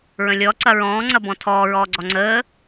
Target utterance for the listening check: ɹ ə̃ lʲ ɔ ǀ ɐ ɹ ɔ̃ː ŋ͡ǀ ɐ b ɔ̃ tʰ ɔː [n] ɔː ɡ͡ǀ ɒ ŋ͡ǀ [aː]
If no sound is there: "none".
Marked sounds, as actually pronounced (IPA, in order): ɹ, əː

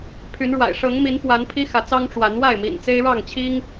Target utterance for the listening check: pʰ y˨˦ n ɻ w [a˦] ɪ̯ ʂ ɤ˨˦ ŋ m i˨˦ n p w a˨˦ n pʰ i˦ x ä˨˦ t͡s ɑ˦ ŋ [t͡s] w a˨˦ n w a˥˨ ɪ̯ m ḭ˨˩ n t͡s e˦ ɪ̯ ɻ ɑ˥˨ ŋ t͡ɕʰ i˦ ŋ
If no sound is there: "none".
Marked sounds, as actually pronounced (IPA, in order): a̰˨˩, ʈ͡ʂ

